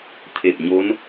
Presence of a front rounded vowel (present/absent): absent